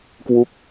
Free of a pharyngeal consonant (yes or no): yes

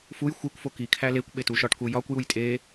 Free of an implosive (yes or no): no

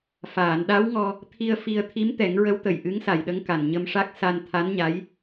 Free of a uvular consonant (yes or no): yes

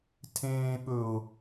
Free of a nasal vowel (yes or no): no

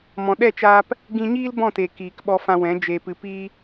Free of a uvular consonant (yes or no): yes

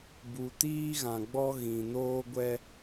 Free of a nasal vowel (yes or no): no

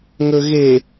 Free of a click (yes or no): yes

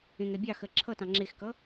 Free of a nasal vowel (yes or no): no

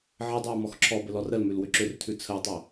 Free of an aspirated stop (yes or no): no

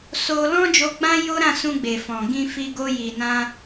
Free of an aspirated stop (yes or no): yes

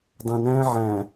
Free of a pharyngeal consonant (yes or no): no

